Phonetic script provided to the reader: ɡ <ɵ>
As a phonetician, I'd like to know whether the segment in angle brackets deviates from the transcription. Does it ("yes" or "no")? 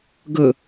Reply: no